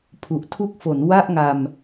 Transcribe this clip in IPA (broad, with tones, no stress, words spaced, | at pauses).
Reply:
pʰu˨˩ʔtʰu˦˥k̚fo˩˦n wa˥˩ʔŋa˧m